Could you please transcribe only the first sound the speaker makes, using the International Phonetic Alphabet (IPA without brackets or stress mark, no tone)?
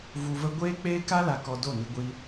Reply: v